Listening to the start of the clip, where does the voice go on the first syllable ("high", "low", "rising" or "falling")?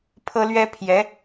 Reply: high